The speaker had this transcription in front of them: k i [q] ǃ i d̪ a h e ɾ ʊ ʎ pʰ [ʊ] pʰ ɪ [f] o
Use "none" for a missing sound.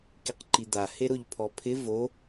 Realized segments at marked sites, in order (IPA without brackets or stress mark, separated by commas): q, ɔ, v